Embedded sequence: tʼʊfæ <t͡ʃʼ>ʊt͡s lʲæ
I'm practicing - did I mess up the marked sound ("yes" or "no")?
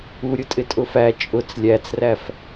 no